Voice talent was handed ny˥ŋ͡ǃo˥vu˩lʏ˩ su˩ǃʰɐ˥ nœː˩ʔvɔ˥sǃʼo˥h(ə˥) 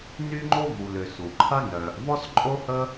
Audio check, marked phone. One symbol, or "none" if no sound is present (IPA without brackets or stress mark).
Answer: ə˥